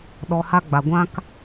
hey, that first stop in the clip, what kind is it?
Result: implosive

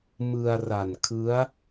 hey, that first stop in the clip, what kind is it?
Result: aspirated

